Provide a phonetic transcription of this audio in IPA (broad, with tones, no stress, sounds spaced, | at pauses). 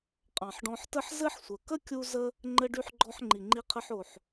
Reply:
qʼ ɑ̃˨ ħ ɖ ɔ̃˧ ħ t ə˦ ħ z ɘ˦ ħ sʷ ə˨ k ə˦ kʲ u˧ z ə˧ | ŋ͡ǃ ɘ˧ ɖ y˧ ħ ɡ͡ǃ ɔ˧ ħ ŋ͡ǃ i˨ ŋ͡ǃ i˧ qʰ ə˧ ħ o˨ ħ